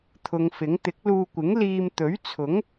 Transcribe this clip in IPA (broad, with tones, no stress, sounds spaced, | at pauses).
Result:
t̪ʰ ʊ˨˧ ŋ f ɪ˨˥ ŋ t̪ ɪ˨˥ k̚ l uː˧ kʷ ɪ˨˥ ŋ l iː˧ m t̪ ɵ˨˥ ɥ t͡sʰ ʊ˨˥ ŋ